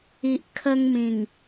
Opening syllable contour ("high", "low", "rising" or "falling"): low